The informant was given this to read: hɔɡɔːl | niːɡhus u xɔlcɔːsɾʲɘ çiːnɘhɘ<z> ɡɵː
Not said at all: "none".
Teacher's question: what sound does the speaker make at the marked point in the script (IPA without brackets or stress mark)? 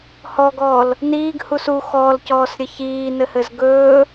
z